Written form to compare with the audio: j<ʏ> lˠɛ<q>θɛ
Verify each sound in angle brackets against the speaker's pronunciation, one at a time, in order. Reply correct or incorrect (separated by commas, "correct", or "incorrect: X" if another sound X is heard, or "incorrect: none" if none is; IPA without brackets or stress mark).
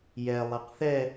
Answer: incorrect: ɛ, correct